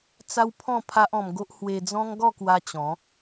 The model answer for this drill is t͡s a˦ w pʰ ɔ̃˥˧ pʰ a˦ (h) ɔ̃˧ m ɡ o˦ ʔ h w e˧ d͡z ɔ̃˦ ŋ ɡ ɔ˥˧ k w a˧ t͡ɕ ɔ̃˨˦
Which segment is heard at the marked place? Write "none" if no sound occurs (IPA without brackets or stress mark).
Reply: ʔ